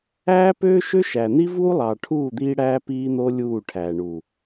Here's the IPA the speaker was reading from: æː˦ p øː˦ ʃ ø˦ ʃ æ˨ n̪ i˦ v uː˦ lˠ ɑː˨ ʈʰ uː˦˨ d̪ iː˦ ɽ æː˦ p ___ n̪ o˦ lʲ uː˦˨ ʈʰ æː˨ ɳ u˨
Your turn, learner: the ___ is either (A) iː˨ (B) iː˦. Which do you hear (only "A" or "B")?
B